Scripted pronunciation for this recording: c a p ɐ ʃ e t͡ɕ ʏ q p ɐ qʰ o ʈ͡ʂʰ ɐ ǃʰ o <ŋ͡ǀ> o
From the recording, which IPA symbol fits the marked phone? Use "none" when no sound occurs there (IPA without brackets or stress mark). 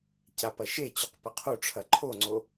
ŋ͡ǀ